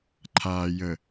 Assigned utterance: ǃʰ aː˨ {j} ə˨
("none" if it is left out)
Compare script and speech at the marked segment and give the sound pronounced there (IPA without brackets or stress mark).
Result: j